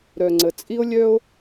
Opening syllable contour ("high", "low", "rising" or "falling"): low